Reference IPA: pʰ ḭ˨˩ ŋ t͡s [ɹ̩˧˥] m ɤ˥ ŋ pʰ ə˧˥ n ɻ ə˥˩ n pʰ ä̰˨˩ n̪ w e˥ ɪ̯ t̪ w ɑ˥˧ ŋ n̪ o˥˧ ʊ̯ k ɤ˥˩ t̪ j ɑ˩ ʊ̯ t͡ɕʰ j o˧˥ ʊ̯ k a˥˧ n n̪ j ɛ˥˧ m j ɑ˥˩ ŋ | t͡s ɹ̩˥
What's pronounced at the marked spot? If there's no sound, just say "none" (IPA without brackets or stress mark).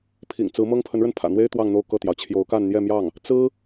ɹ̩˧˥